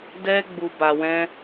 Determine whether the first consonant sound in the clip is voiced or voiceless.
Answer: voiced